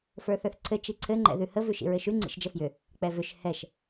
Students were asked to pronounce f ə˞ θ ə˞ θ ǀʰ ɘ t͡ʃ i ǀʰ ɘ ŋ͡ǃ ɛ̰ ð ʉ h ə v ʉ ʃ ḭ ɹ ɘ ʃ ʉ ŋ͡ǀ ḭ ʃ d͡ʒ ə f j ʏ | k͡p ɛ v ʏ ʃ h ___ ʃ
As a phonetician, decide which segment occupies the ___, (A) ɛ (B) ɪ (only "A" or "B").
A